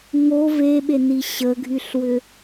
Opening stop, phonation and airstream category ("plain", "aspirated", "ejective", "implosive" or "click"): implosive